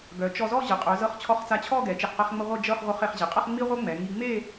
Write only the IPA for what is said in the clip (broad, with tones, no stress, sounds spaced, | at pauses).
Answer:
ɡ œ˩˧ t͡ʃ ɔ˧ z ɔ˥˧ ʑ ə˩˧ qʼ œ˩˧ z ɤ˧ χ t͡ɕʰ ɔ˧ χ t͡s a˧ t͡ɕʰ ɔ˥˧ ɡ ɛ˩˧ t͡ʃ ɛ˧˩ χ q ɛ˧ χ ŋ͡m ə˧ ʁʷ ə˥˧ d͡ʒ ɤ˥˧ χ ʁʷ œ˧ χ e˩˧ χ ʑ e˩˧ qʼ ɤ˥˧ χ ŋ͡m i˥ ʁʷ œ˥ ŋ͡m ɛ˩˧ ŋ i˧ ŋ͡m e˥˧